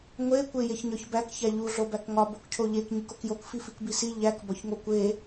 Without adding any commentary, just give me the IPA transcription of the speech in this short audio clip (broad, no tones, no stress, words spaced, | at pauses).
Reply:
ŋʷe kʷejeçɲɒçbæk çæʎu ɮobækŋɒ bokcʰoʎek ɲikokjok fifikbisi ʎæk bɒçŋokʷe